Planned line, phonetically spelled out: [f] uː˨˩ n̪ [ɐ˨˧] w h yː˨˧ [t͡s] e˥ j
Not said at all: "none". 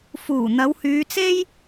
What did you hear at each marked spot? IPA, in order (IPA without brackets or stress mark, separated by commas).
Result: f, ɐ˨˧, t͡s